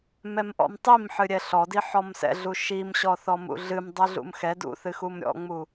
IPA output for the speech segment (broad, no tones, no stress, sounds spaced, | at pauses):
m ɛ m ʔ ɔ̰ m tˤ i m ħ ɨ ɾʲ ɛ ɬ ɔ d i ħ ɔ m s ɛ̰ ɮ u ʃ i m ɕ ɔ θ ɔ m ṵ ɮ ɨ m dˤ ɨ ɮ ṵ m x ɛ d ṵ θ ɨ x u m ɾʲ ɔ̰ ŋ͡m u